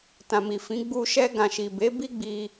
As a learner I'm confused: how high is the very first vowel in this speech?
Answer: low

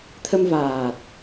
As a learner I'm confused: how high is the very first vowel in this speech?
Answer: mid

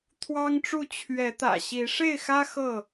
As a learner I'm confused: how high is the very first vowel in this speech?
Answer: low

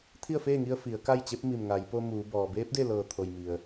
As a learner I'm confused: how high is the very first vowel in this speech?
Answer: high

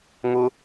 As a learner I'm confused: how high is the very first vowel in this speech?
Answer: high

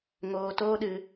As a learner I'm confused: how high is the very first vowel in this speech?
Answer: mid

